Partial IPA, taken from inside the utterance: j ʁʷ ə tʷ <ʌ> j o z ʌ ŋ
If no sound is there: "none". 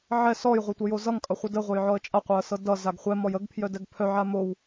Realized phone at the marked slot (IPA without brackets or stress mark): ə